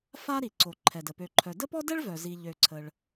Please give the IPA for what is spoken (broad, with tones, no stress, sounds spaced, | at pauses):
f a˥ ɾ i˩ ǀ o˩ ǃʰ ɛ˩ d ə˩ p ø˩ ǃʰ œ˩ d ə˥ p ɔ˥ d ɛ˥ ɭ v œ˩ z i˩ ʎ ø˩ ǀʰ ə˩ ɭ